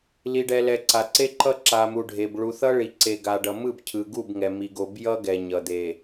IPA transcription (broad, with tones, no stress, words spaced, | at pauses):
li˨ɖɛ˨lɛ˨ ǀa˨ǀe˦ǃʌ˦ ǁa˨mu˨ɖʱe˨b ɭu˨θʌ˦ɭi˨ ǀe˨ɡa˨ɖʌ˨ mɯ˦˨bcʰɯ˨ɡu˦˨bŋɛ˨ mi˨ ɡo˨bjʌ˦ ɡɛ˨ɲʌ˨d̪e˨